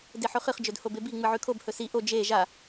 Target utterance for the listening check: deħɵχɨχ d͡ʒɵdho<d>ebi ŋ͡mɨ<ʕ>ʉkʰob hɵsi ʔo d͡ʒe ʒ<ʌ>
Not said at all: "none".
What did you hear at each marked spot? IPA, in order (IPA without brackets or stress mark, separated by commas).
b, ʕ, a